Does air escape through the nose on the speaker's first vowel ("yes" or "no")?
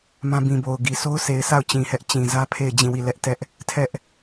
yes